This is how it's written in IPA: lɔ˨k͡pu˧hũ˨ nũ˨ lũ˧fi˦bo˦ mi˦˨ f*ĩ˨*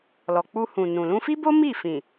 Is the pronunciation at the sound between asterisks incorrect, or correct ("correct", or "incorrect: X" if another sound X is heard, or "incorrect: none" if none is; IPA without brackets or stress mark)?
correct